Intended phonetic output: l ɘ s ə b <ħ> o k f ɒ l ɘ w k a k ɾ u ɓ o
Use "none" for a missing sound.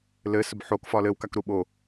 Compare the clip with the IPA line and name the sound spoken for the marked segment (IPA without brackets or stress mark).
ħ